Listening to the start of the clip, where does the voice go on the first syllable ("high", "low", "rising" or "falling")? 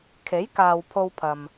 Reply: rising